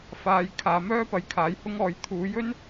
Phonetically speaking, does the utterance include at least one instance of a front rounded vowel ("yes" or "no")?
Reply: yes